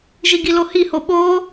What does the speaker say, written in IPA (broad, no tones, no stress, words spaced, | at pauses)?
ʒiɡilohi hoɓoː